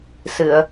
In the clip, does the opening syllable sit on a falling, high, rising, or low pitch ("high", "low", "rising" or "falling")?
low